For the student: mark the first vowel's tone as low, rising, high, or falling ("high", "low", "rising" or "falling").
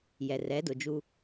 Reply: low